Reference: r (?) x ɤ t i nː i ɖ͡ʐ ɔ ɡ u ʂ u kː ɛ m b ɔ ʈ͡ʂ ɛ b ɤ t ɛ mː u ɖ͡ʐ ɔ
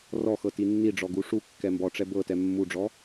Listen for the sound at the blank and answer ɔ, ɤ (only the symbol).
ɔ